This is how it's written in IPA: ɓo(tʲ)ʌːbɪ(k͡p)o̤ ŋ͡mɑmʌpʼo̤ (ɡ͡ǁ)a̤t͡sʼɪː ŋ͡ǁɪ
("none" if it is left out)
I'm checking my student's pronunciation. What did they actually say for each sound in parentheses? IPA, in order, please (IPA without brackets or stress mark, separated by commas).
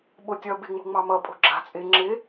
tʲ, ŋ͡m, ɡ͡ǁ